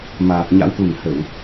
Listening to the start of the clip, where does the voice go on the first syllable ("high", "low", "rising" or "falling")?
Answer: low